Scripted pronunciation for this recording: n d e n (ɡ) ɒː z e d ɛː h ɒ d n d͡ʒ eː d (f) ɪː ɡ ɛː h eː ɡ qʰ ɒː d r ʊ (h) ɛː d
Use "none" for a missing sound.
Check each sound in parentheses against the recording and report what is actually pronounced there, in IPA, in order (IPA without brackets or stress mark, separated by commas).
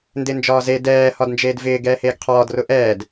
d͡ʒ, v, ʔ